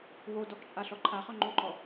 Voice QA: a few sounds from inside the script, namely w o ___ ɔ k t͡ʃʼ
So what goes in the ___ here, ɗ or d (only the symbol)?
d